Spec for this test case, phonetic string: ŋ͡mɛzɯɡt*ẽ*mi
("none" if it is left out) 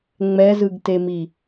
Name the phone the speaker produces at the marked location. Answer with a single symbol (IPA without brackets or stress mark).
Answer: e